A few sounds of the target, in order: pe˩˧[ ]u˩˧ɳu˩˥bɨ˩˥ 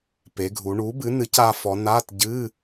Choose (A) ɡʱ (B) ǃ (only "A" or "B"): A